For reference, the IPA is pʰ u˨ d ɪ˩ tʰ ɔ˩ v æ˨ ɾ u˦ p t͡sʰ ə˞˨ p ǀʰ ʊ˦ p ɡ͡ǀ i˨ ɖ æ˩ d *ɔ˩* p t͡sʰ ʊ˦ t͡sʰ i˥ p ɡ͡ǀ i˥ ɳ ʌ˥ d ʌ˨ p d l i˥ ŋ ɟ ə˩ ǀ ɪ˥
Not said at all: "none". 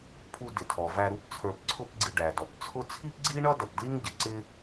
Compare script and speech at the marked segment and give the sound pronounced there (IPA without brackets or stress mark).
ɔ˩